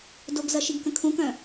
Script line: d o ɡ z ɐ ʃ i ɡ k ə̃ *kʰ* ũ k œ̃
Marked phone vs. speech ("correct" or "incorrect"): correct